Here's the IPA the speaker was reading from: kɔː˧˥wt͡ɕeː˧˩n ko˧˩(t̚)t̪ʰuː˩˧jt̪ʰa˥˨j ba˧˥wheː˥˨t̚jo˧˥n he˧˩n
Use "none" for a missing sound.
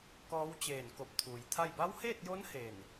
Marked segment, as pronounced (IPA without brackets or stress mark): p̚